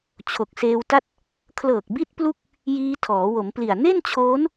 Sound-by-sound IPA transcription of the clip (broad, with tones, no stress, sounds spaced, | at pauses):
t͡ɕʰ o˨˩ k̚ s eː˧ w t a˥˩ t̚ | kʰ l ɤː˨˩ k̚ b i˦˥ t̚ p l u˥˩ k̚ | j iː˧ tʰ ɔː˩˦ w o˩˦ m p l i˨˩ a̯ n e˥˩ n t͡ɕʰ oː˦˥ n